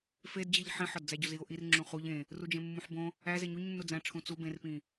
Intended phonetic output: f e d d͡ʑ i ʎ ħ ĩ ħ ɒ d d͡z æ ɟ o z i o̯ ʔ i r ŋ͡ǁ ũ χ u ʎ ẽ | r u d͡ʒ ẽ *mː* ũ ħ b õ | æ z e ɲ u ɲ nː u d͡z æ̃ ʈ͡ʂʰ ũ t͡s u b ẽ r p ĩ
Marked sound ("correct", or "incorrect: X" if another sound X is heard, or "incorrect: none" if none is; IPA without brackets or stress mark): correct